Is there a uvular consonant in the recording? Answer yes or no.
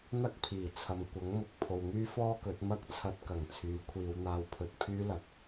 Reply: no